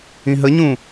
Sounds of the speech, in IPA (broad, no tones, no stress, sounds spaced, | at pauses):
ĩ ɦ ə ɲ ũ